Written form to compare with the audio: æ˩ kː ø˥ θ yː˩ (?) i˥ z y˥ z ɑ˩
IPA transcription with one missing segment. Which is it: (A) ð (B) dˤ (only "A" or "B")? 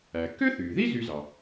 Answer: A